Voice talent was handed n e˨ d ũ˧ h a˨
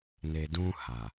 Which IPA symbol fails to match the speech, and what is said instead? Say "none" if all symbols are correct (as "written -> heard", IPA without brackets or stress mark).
none